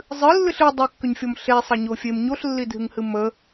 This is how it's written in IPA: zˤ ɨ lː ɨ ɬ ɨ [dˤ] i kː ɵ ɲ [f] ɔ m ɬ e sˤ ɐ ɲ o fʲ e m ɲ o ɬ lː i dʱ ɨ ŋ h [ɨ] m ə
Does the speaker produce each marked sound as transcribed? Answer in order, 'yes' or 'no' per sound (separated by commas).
yes, no, yes